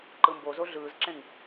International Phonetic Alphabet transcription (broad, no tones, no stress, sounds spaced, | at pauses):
ǃ ɯ m b o z o ɮ ɯː z ǁ ẽ ŋ